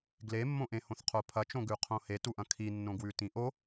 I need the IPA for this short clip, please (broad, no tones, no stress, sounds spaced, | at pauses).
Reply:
ɡ l e mː õ ʔ ẽ h õ θ qʰ o pʰ ɐ t͡ʃ õ ɡ ʉ qʰ õ h e t u ʔ ɐ̃ kʰ i nː õ ɡ w ʉ t ĩ ʔ o